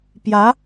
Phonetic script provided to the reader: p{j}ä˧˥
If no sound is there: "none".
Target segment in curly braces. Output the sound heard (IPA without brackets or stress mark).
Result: j